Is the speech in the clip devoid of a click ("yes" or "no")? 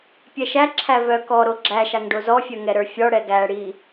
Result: no